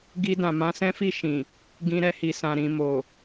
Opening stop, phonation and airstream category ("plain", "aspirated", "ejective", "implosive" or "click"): plain